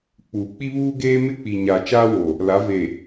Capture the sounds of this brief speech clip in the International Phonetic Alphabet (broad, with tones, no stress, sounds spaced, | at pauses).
k͡p uː˨ k͡p i˦ β uː˦ ɡ eː˦ m ɪ˦ k͡p i˨ ɲ a˨ t͡ʃ aː˦ w o˨ | l a˨˦ v e˨